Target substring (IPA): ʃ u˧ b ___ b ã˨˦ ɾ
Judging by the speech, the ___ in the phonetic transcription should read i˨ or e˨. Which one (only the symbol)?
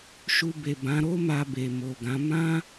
e˨